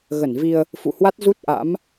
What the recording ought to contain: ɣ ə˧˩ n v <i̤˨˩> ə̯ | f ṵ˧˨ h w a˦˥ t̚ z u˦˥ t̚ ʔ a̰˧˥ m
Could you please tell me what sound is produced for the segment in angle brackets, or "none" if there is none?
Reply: i˧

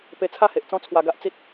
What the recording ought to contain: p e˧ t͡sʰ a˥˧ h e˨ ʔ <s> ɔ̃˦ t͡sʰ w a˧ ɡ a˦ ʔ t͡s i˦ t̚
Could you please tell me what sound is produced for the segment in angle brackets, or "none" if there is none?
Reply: t͡s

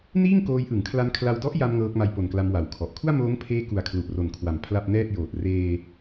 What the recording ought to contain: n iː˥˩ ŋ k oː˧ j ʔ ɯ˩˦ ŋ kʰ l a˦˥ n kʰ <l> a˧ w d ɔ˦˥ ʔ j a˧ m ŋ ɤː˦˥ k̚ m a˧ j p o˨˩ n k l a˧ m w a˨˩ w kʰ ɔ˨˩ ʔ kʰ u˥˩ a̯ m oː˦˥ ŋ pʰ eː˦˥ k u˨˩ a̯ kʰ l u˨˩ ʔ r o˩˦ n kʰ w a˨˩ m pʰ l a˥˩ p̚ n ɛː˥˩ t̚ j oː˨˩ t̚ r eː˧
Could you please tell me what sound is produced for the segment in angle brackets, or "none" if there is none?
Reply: l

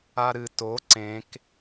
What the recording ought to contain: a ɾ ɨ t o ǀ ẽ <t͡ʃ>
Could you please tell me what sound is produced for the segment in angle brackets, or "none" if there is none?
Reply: k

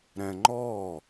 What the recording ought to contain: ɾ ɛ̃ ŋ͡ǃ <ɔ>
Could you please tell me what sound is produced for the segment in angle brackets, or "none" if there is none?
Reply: ɔ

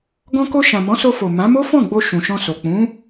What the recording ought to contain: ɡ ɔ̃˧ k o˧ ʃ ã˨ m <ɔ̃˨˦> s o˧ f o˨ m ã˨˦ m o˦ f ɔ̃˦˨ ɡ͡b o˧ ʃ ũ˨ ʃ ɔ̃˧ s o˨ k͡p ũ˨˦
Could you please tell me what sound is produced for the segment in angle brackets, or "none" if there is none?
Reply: ɔ̃˨˦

